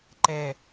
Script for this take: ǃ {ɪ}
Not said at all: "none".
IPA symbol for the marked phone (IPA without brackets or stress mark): ɛ